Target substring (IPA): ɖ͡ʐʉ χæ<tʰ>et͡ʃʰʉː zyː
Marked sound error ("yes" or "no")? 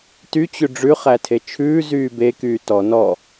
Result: no